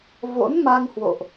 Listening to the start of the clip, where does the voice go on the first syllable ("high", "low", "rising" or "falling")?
rising